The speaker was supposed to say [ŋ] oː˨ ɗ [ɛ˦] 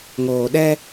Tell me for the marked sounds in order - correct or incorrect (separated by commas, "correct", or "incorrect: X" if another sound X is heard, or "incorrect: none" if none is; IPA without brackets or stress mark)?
correct, correct